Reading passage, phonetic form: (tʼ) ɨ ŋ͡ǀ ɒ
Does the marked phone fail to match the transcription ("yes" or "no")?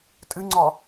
no